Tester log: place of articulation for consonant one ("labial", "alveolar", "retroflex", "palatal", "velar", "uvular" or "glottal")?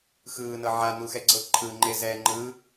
velar